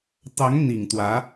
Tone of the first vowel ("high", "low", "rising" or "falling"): rising